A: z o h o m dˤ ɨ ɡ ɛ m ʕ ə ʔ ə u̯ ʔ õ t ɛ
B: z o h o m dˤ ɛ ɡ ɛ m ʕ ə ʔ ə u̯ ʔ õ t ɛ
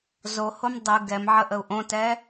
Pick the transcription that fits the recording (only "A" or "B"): A